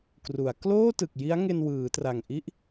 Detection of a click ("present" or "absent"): absent